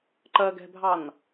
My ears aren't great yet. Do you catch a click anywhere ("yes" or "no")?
yes